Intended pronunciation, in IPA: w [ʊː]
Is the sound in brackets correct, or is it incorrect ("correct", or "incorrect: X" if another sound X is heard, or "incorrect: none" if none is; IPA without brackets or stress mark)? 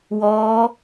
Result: incorrect: ɔː